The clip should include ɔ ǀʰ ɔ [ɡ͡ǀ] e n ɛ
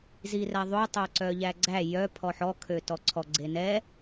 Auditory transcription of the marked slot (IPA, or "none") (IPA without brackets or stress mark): ɡ͡ǀ